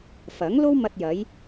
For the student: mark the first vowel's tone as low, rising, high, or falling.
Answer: rising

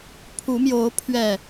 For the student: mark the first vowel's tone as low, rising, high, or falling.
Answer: rising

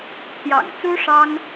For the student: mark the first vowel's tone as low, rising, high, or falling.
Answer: low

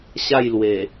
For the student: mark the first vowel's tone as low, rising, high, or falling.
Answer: falling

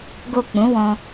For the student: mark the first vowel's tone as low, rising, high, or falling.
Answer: low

